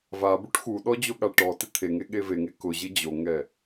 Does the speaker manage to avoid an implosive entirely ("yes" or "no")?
no